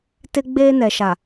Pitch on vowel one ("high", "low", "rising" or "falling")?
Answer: high